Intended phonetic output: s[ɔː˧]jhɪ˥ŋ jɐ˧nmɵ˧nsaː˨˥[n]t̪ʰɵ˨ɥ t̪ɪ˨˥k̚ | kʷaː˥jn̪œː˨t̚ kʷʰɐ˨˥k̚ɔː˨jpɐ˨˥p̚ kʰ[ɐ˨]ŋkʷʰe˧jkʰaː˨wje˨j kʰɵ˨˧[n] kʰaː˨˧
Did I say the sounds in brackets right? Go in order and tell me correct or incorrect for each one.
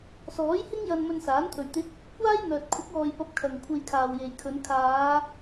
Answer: incorrect, correct, correct, correct

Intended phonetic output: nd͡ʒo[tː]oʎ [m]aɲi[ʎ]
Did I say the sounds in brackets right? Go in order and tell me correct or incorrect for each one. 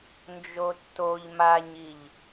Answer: correct, correct, correct

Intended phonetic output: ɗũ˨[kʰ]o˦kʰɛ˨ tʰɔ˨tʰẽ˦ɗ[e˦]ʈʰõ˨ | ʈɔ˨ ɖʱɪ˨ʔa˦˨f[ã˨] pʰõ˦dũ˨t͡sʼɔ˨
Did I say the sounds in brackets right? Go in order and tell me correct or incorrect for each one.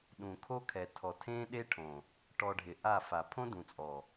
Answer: correct, correct, incorrect

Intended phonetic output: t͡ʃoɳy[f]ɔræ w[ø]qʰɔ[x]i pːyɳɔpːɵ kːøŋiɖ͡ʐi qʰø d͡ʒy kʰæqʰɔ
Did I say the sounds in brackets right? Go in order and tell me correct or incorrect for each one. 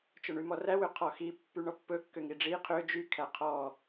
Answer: incorrect, correct, correct

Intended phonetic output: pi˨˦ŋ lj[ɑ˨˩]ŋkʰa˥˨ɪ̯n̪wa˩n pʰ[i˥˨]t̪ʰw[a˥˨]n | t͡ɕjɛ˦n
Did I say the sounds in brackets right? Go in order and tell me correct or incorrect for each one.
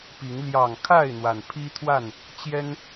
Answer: correct, incorrect, correct

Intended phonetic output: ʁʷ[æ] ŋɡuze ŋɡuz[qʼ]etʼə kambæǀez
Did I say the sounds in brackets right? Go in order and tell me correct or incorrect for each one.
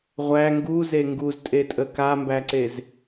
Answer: correct, incorrect

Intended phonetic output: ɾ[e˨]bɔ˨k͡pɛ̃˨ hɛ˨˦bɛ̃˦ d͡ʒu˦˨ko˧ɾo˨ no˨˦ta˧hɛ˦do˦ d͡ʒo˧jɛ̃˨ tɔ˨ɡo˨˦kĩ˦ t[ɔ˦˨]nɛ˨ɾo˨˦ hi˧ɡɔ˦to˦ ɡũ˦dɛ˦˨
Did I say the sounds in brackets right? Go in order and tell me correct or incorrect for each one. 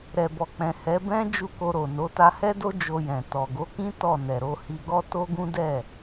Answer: incorrect, correct

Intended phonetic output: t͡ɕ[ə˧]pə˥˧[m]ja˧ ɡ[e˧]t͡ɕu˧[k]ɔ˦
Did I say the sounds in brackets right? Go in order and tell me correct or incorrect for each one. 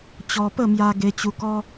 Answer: incorrect, correct, correct, correct

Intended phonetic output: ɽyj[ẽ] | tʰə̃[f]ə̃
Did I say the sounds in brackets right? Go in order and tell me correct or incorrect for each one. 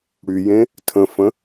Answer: correct, correct

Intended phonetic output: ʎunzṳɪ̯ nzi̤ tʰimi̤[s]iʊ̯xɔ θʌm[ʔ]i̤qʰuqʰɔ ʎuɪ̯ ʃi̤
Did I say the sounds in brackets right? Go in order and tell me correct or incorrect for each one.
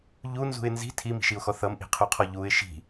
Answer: incorrect, correct

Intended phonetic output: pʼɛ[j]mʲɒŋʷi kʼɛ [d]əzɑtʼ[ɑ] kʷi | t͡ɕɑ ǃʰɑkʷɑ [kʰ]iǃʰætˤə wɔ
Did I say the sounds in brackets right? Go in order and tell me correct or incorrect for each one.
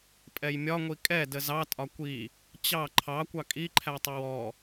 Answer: correct, correct, incorrect, incorrect

